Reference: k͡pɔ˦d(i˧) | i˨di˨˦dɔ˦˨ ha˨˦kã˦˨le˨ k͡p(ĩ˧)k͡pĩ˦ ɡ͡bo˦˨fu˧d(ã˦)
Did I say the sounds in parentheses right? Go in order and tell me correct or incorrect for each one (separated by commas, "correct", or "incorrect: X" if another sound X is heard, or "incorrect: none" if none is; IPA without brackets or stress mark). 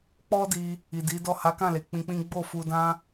correct, correct, correct